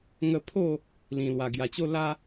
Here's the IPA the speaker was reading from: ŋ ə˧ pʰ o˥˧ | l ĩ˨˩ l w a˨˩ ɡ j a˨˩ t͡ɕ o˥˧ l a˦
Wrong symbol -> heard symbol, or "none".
none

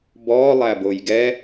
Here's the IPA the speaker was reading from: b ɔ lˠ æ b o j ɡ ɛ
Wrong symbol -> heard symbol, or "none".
none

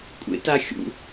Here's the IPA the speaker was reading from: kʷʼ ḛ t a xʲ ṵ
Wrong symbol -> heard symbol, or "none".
none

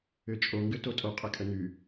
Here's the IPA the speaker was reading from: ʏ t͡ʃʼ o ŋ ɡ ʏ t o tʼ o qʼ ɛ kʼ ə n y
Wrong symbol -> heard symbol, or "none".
none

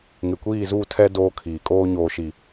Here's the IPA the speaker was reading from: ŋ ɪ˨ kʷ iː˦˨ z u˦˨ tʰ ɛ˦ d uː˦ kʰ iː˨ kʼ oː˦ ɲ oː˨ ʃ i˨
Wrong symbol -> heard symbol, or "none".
uː˦ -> oː˦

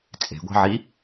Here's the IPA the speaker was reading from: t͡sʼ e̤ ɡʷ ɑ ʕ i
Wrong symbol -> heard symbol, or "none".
ɑ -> ɑ̤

